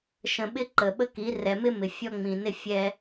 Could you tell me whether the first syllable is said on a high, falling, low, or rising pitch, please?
low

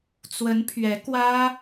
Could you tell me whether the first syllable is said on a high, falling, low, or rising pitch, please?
rising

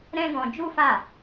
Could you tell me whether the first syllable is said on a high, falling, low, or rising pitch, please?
high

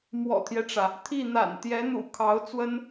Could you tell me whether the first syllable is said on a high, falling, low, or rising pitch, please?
low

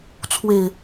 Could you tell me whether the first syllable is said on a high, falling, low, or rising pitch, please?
low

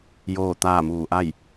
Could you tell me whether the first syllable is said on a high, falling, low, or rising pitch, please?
falling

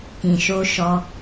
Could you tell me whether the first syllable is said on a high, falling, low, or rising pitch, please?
low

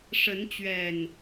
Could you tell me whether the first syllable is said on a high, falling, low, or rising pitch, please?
rising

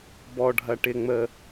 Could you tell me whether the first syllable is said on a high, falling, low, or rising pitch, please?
low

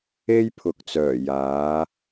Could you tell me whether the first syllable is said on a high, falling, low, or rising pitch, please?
high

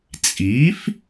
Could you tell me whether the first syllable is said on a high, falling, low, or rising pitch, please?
rising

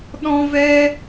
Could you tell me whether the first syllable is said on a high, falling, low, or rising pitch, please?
high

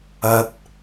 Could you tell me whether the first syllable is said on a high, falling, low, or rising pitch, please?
rising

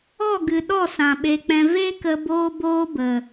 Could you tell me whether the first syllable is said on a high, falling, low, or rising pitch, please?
falling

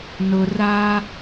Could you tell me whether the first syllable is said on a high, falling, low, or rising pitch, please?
low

